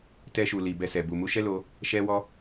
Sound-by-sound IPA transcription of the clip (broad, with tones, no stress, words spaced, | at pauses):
tɛ˦ʃu˧ li˨bɛ˧sɛ˨ bu˨mu˧ʃɛ˦ lo˦ | ʃɛ˦wɔ˦